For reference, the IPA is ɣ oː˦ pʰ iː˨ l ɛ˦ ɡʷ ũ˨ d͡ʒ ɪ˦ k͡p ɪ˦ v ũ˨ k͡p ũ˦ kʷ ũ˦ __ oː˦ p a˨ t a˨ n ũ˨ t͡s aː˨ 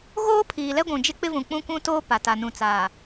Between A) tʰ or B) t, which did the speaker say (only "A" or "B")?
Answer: B